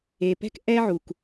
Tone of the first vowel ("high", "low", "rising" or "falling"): low